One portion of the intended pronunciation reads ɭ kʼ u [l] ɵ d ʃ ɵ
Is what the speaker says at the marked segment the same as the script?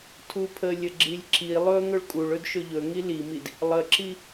no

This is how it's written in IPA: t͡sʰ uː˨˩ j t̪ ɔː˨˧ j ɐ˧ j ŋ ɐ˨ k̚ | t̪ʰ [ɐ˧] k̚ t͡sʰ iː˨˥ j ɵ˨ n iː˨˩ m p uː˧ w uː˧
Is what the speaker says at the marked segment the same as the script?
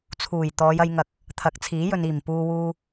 no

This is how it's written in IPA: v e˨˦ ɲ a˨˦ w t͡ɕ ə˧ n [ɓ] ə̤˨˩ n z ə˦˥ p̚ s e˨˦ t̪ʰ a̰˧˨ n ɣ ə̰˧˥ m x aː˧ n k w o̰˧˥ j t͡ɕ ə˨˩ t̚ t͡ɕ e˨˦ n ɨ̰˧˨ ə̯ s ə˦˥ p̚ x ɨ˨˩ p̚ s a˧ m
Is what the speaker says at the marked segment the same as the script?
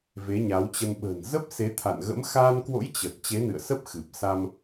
yes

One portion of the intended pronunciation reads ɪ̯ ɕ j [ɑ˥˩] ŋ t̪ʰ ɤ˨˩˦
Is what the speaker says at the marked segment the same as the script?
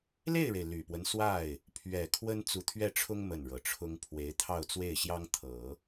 no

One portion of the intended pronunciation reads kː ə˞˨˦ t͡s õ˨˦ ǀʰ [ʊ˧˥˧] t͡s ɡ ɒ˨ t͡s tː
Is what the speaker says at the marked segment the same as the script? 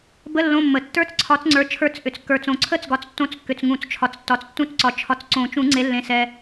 no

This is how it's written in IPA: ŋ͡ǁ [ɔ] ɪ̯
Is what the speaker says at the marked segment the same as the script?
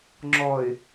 yes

